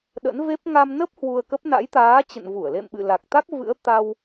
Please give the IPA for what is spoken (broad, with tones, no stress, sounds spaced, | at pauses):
ɗ ə̰˧˥ n v e˦˥ p̚ ŋ a˧ m n ə˦˥ p̚ h w u˧ ə̯ k ə˦˥ p̚ n a̰˧˥ j t̪ aː˨˦ t͡ɕ ə̰˧˨ n v u˧˩ ə̯ l ḛ˧˨ m ɓ ɨ̰˧˨ l a˨˩ k̚ t̪ a˦˥ k̚ v ɨ̰˧˥ ə̯ t̪ a˧ w